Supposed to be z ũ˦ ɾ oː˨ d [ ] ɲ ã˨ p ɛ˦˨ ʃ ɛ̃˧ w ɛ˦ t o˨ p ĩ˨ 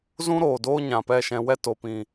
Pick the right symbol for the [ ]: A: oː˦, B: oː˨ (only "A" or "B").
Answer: A